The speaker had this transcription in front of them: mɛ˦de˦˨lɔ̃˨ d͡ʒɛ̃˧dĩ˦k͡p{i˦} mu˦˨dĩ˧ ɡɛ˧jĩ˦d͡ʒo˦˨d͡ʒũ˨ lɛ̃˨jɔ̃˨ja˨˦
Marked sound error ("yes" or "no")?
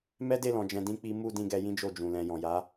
no